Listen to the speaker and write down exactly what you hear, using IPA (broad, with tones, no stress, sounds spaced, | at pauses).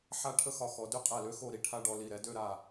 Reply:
ħ a˥ ʈʰ ə˥ x ɒ˧ x ɔ˩˧ d ø˥ qʼ a˧˩ l ø˥ x o˥˧ ɾ i˧ ʈʰ a˥ ɖ ɔ˧ l i˧˩ ɾ ɛ˥ d ø˥˧ ɾ a˧˩